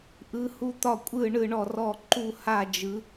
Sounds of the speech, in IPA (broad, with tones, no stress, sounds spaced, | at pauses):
ʔ ɯ˨˦ h u˦˨ t̪ ɒ˦˨ kʷʼ ɯ˦˨ ɳ ɯ˦˨ ɳ ɔ˦˨ r ɔ˦˨ ǃ u˦˨ h a˦˨ d͡ʒ ɯ˨˦